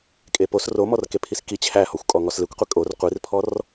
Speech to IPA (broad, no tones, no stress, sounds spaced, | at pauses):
kʼ e p o s r o m ɔ r k e pʰ i s k i t͡ɕʰ æ h ɔ xʷ kʼ ɔ ŋ ɔ s l e kʷ qʷ e kʼ o r qʷ i r pʰ ɔ r